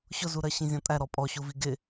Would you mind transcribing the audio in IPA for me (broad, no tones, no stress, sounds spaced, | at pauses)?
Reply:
ɕ ʊ z u ɾ ɜ ɕ ĩ zʲ ɔ̃ tʼ æ ɾ ɔ pʼ ɔ ɕ u v i ɡ ɪ